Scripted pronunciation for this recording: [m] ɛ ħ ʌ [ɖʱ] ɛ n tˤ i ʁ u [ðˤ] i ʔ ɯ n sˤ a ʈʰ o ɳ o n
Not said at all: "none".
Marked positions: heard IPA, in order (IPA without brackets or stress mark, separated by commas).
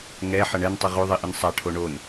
ŋ, ɳ, ðˤ